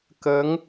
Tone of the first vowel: rising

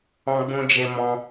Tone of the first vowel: high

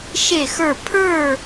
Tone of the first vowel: falling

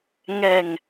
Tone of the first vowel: low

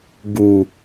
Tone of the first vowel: low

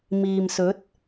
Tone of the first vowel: low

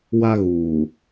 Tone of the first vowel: high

